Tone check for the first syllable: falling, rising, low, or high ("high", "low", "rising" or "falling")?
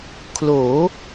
rising